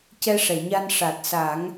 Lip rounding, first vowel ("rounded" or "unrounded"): unrounded